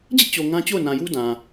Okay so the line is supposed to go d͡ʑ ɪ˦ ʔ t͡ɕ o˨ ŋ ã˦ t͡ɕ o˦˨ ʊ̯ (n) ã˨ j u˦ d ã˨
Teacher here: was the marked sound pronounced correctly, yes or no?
yes